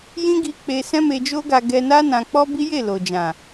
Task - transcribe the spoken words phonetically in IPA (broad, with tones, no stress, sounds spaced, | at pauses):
j ĩ˦ ɡ i˧ k͡p e˧ s ɛ̃˦ m e˧ d͡ʒ o˦ ɡ a˧ ɡ ɛ˧ n a˦ n ã˧ k͡p ɔ˦ b i˦ j e˦˨ l o˨ d͡ʒ ã˨